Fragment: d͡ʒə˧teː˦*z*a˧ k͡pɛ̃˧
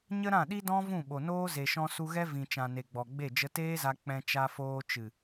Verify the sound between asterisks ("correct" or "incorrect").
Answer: correct